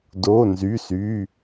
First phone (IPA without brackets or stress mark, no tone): d